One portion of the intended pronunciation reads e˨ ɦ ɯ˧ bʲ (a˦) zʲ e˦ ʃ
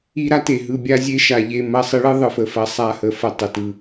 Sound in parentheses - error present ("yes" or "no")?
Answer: no